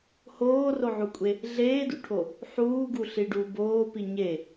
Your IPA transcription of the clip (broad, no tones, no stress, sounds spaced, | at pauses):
h oː r o ʕ u kʷʼ e | ɮ eː d ṵ ʈʰ o | ħ uː ɡ u ɬ i ɖ uː b oː p i ɲ e